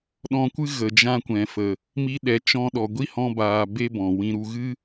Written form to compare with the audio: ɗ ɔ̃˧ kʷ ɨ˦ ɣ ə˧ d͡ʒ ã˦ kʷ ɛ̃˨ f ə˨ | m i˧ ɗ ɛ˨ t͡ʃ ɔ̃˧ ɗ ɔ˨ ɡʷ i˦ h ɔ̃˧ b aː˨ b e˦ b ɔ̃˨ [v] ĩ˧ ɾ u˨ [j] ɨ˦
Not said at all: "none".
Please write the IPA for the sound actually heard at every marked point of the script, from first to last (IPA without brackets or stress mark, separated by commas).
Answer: w, ɣ